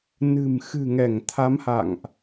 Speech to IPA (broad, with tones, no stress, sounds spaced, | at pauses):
n ɨ̤˨˩ m x ɨ̤˨˩ ŋ ɛ˧˩ ŋ t̪ʰ a˨˦ m h a̰˧˨ ŋ ʔ